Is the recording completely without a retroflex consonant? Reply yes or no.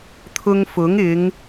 yes